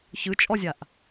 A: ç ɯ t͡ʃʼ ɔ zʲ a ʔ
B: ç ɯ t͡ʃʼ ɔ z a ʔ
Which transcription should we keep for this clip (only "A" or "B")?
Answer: A